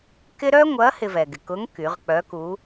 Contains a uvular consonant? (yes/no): yes